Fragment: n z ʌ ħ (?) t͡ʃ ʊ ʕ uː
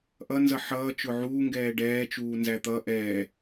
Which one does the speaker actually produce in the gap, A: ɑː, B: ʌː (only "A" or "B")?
B